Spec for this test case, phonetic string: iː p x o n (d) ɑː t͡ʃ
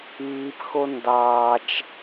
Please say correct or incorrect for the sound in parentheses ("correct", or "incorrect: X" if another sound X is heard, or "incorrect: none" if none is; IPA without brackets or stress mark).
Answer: correct